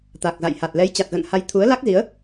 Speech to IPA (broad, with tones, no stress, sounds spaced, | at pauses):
t̪ a˨˩ k̚ z a̰˧˨ j h a˨˩ t̚ l ɛ˨˦ j t͡ɕ a˨˩ t̚ ɣ ə̰˧˨ n h a˨˦ j t̪ʰ u˨˦ ə̯ l a˦˥ k̚ z i˨˦ ə̯